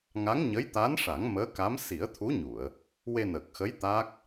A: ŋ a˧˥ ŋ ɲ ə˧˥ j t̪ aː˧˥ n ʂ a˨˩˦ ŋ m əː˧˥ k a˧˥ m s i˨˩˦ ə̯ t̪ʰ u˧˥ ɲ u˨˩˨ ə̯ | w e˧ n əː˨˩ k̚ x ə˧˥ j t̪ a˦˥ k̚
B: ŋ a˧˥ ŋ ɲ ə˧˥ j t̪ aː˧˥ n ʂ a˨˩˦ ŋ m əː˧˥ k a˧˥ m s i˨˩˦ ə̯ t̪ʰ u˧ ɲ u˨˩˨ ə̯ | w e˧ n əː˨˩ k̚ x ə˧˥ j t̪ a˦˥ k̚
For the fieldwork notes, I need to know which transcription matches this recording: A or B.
A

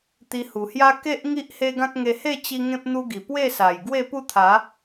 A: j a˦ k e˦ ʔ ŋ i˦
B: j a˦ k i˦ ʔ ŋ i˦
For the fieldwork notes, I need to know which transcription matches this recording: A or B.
A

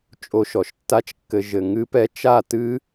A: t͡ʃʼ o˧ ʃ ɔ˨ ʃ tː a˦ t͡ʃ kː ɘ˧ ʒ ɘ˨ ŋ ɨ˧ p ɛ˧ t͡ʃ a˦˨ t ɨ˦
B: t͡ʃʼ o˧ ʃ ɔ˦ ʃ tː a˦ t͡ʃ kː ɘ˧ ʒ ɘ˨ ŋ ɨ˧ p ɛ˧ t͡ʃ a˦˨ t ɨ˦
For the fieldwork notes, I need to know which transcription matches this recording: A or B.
A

